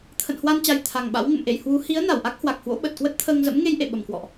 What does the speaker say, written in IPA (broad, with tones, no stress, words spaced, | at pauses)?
t̪ʰə̰ː˧˨nhwa˧nt͡ɕa˨˩j t̪ʰa˨˩ŋɓa̰˧˥w ŋə̰˧˨mʔḛ˧˨j hwu˨˦ hi˨˦ə̯ na˧˩wʔa˦˥k̚hwa˨˩k̚hwo̰˧˥ ɓə˨˩t̚kwə˦˥t̚t̪ʰəː˧ŋzə̰˧˥m ŋe˧jʔḛ˧˨ ɓə˨˩mkwɔ̰˧˨ʔ